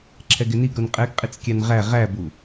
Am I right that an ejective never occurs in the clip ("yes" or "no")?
no